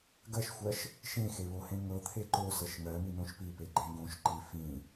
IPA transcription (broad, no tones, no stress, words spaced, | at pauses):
ɡɜʃxʷɜʃ | ʃẽxe βohẽŋɤt̪ʰe ǃosɤʃ ŋɜ minõʃpipe ɡ͡ǃẽɡõʃǃi fĩ